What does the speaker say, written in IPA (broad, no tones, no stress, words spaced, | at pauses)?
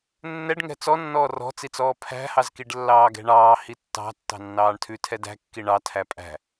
nːɛɖ ŋɛ̤t͡sɔ nːɔːrɔ̤t͡sit͡sɔː pʰæ̤hɑzkiɖlːɑː ɡɛ̤ɳɑː hitːɑ̤tːɑ̤ nːɑːɳtʰʉtʰɛ dæ̤kːi ɳɑ tʰæpʼæ̤